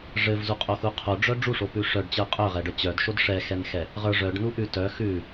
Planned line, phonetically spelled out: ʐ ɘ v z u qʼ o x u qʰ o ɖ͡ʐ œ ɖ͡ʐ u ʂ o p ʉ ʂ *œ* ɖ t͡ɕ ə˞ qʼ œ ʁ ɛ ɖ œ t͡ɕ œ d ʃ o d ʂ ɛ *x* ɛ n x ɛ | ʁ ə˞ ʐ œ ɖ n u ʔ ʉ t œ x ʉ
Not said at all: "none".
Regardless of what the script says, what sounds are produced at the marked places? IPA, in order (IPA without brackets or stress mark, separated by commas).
œ, x